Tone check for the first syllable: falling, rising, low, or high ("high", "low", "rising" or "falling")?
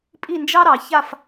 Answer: falling